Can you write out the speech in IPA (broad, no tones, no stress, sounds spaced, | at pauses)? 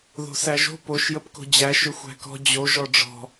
ð o̤ s æ ʒ o̤ p o ʃ j ə p k o̤ d͡ʑ æ ʃ ʏ xʷ æ̤ k ɔ̤ d͡ʑ o ʒ ɔ ɖ͡ʐ ɔ̤